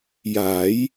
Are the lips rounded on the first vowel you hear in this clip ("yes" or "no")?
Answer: no